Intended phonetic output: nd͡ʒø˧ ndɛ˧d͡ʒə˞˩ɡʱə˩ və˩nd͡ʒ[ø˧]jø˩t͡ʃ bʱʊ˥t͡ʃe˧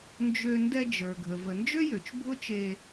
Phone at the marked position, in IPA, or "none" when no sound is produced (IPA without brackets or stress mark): ø˥